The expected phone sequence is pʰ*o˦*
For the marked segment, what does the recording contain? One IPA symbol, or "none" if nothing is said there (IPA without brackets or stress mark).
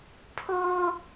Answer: o˦